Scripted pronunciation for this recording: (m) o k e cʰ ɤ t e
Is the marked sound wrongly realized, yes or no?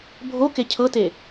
yes